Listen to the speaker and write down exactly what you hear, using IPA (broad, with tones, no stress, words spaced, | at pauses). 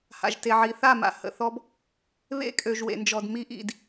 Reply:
ha̰˨ʒte˨ʕi˨ θa˦˨ma̰˨hə̰˨θɔ˦b | βḛ˦kʼø˨ʒ wḛ˨nd͡ʒɔ˨dmi˦ ʔḭ˦d